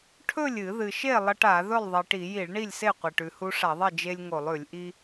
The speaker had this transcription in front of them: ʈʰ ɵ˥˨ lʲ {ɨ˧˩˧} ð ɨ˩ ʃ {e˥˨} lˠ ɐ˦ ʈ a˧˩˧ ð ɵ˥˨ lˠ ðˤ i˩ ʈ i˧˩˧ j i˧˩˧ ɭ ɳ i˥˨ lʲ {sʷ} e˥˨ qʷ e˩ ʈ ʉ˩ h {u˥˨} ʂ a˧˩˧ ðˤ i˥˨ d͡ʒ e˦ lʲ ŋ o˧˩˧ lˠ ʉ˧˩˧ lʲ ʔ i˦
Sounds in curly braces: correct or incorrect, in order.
correct, correct, incorrect, incorrect

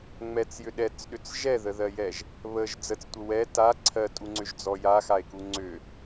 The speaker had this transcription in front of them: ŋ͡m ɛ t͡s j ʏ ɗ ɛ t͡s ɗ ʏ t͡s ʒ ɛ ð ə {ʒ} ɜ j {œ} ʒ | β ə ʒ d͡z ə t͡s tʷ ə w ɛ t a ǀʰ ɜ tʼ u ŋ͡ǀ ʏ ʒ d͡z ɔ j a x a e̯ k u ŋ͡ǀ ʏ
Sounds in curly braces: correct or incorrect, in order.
incorrect, incorrect

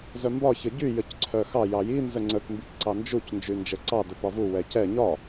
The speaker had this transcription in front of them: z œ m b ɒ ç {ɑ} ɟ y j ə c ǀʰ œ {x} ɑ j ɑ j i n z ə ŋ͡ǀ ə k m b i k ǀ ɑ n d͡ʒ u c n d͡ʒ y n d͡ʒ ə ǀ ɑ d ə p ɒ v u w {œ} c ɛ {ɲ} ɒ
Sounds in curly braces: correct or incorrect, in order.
incorrect, correct, incorrect, correct

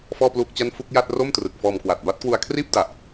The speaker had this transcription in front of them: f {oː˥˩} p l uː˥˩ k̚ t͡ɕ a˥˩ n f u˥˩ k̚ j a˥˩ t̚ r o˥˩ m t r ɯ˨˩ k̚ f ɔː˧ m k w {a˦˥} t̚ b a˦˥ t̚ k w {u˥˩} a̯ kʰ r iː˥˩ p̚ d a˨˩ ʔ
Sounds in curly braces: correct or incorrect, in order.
incorrect, incorrect, incorrect

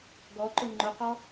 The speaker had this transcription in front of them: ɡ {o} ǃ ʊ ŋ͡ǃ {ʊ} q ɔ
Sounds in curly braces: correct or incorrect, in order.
incorrect, correct

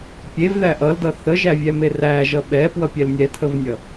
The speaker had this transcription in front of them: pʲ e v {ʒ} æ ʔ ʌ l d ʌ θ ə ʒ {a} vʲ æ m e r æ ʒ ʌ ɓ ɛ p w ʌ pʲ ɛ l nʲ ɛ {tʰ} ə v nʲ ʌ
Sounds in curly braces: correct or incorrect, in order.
incorrect, incorrect, correct

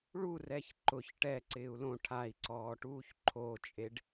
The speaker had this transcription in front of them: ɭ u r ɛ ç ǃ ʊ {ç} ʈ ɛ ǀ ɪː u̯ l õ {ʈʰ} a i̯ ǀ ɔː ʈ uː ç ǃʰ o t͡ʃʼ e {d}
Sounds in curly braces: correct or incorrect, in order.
correct, correct, incorrect

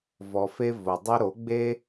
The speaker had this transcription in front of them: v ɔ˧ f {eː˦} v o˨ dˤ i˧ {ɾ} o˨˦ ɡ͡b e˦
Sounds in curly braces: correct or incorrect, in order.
incorrect, correct

